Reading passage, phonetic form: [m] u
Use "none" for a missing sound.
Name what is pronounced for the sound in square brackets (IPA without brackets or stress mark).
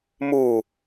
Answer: m